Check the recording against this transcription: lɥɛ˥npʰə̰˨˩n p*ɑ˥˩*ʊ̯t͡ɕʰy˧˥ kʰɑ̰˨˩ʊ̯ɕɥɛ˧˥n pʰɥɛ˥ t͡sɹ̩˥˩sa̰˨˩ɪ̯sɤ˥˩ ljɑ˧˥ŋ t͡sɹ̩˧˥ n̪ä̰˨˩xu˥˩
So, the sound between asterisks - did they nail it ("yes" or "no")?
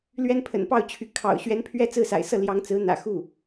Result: yes